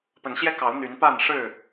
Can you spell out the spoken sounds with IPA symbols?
p ə˨˦ n ɕ j ɛ˦ k ɑ˨˦ ʊ̯ n̪ y˨˦ n p a˥˨ n ʂ ɻ̩˥˨

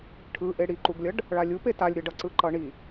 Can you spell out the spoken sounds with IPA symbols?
ʈʰ ɯ ʔ e ɽ i ǃ u ɡ lʲ ʌ ɖ | ɭ a lʲ u p e t a lʲ ɾʲ ʌ ɖ ʌ ǀ ɯ ǃ ʌ ɳ i

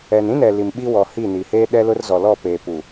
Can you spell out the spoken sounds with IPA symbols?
ɛ˨ n ĩ˦ n ɛ˨ l i˨ m ɓ i˦ w ɔ˨ h i˦˨ n i˨ h eː˦ ɗ ɛ˦ l ʊ˦ r z ɔ˨ l ɔ˦˨ p eː˨ p u˨

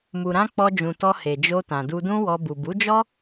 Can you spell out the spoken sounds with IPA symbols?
m u˨ ɾ ã˧ k͡p ɔ˧ d͡ʒ ũ˨ t ɔ˧ h e˨ d͡ʒ o˧ t ã˨ d u˧ d ũ˦ w ɔ˧ b u˨ b u˨˦ d͡ʒ ɔ˦

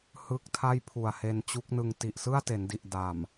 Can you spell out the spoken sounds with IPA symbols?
h ɯ˦˥ k̚ tʰ a˥˩ j pʰ u˨˩ a̯ h e˧ n t͡ɕ u˦˥ k̚ n ɯ˧ ŋ t i˨˩ ʔ s ɯ˥˩ a̯ t e˩˦ n d i˨˩ ʔ d a˨˩ m

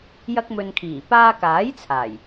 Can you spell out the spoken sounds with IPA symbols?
j ɐ˧ k̚ m ɵ˨ n kʰ iː˨˩ p aː˧ k aː˨˥ j t͡sʰ aː˨˩ j

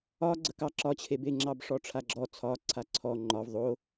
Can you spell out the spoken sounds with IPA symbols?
ɒ ɡ͡ǀ ə k ɑ ǁ ɒ t͡ɕʰ e b e ŋ͡ǁ ɑ b ʂ ɔ ʈ͡ʂʰ a ɡ͡ǁ ɔ t͡sʰ ɒ ǀʰ a ǀʰ ɔ ŋ͡ǃ ɒ v ðˤ o

